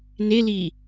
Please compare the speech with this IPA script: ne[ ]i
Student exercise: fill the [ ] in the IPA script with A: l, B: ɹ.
A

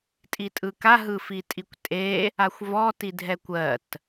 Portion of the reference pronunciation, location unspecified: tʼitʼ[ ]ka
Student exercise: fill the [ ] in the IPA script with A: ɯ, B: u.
A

